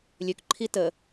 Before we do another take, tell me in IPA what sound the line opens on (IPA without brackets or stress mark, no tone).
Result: lʲ